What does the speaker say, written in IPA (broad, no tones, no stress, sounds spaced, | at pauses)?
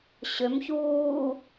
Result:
ɕ ø m ç uː